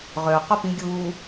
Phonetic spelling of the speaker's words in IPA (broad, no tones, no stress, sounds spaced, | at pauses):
ʁ ø q œ p ĩ ɡʲ uː